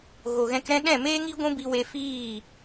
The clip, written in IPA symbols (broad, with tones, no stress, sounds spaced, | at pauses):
ɣ o˨ ɣ ɛ̃˧ k ɾ ɛ̃˦ ɗ ɛ̃˦˨ m eː˦ ŋ i˦ ɡʷ ũ˦ b i˧ w e˧ f iː˦˨